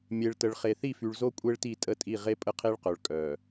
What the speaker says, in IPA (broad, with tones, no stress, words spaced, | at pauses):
mʲe˨ɭtə˨ɭ χe˨θi˦˨fy˨ɭzo˦ kʷʼe˦ɭti˦˨tʼə˦˨tʼi˦˨ ʁe˦pʼə˦˨qʰe˦ɭqœ˨ɭ kʼœ˨